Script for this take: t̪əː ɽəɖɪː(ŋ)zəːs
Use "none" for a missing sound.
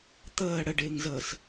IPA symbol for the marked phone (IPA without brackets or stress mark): ŋ